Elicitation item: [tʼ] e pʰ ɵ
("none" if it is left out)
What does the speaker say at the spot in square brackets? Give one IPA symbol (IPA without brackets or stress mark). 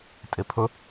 tʼ